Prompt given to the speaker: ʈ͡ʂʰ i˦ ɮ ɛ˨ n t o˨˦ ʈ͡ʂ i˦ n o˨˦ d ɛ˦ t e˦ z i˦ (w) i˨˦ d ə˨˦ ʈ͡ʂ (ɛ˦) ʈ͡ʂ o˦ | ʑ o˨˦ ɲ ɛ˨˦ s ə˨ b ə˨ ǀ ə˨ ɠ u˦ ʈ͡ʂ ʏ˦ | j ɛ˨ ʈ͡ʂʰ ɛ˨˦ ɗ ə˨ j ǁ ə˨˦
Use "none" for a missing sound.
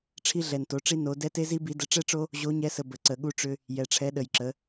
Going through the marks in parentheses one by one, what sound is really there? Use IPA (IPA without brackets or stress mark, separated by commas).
b, ɛ˦